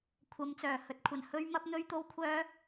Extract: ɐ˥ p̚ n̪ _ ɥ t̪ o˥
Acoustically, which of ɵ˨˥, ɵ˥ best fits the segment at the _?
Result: ɵ˥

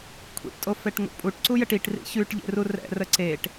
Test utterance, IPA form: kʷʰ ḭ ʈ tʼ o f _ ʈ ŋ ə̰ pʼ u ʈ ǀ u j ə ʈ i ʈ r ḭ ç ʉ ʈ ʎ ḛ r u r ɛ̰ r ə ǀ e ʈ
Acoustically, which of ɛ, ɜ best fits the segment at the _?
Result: ɛ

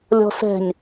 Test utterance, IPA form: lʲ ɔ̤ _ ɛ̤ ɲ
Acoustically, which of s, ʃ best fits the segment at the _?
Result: s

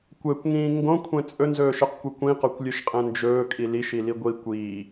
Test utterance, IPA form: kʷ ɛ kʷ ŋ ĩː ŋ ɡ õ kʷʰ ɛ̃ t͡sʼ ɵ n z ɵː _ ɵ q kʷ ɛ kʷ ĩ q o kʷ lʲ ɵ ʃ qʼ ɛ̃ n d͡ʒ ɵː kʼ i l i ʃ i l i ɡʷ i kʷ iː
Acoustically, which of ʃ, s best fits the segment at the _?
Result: ʃ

